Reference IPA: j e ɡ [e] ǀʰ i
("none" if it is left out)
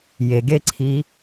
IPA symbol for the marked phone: e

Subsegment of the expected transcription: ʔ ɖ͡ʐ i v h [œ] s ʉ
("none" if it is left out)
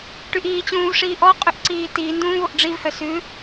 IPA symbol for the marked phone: œ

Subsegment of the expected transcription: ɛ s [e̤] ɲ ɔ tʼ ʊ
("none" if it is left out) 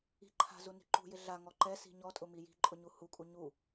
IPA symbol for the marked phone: i̤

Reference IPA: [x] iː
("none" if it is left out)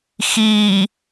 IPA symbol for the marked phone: x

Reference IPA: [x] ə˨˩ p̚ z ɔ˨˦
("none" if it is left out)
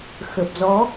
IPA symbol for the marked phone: x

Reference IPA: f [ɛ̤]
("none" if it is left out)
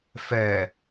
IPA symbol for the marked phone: ɛ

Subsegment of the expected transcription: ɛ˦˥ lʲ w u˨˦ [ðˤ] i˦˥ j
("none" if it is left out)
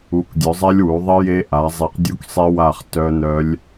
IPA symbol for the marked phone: ðˤ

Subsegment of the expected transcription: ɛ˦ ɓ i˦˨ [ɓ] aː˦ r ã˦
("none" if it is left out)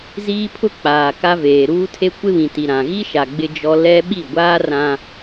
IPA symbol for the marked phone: ɡʷ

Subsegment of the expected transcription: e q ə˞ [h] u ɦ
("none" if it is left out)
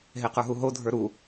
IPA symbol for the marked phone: ɦ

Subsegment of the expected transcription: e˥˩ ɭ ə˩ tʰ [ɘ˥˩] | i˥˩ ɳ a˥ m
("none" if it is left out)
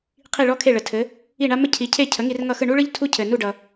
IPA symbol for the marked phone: ɘ˩˥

